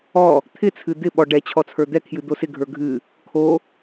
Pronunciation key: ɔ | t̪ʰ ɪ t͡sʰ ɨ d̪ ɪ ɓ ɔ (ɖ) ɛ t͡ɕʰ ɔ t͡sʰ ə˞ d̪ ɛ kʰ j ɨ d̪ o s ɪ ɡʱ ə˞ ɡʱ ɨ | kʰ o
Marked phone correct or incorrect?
correct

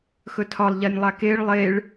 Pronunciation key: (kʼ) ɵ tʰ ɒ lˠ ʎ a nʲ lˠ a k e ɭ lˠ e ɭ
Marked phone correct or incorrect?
incorrect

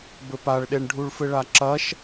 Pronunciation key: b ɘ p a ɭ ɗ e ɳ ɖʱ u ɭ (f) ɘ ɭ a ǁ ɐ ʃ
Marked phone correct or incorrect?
correct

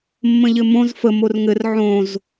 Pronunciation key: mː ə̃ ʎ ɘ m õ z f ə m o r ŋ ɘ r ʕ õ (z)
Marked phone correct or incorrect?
correct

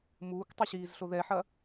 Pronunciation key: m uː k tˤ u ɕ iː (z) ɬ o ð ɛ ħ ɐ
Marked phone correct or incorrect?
correct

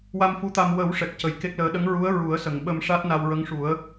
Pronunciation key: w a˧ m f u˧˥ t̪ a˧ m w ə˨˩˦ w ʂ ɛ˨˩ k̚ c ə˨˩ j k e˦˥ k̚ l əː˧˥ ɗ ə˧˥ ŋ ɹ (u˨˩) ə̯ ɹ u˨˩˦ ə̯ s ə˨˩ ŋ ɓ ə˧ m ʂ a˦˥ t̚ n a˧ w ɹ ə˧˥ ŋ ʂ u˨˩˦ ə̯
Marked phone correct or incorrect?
incorrect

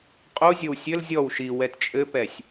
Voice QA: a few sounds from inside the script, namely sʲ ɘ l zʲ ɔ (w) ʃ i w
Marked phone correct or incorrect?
correct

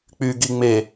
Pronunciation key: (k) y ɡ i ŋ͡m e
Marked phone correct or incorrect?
incorrect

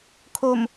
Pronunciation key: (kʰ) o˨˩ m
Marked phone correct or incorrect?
correct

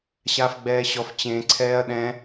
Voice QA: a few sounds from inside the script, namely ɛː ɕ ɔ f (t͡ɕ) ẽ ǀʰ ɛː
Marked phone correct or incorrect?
correct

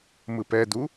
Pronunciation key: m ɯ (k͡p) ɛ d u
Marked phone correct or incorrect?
incorrect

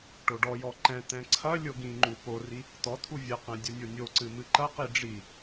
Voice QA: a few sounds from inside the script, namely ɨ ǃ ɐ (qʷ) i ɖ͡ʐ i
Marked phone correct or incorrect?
incorrect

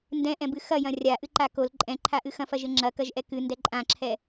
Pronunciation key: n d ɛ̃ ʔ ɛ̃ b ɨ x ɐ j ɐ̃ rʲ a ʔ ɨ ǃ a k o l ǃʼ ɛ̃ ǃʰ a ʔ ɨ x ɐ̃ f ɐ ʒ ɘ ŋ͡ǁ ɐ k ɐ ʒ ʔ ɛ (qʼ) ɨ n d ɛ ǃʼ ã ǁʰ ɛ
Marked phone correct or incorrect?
incorrect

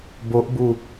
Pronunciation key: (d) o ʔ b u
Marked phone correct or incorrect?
incorrect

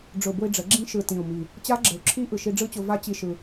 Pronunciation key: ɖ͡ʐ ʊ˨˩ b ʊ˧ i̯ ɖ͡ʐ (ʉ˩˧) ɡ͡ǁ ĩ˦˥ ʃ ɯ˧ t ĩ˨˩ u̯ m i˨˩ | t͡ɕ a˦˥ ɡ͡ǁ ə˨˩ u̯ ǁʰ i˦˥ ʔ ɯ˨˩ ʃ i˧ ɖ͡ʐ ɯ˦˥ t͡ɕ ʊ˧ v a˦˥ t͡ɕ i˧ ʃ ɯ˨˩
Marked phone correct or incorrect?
incorrect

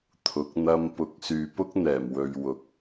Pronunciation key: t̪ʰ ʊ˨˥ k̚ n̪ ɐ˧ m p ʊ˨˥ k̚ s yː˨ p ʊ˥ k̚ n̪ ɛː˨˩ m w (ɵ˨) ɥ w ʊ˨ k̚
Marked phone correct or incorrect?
correct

